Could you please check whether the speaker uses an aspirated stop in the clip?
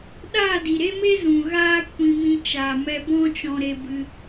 no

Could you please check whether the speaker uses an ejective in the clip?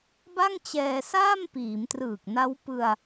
no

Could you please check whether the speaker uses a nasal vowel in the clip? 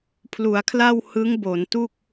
no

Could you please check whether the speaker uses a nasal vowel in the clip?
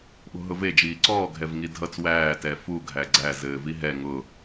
no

